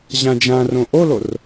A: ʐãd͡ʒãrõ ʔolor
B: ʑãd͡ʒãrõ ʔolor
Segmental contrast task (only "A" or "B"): B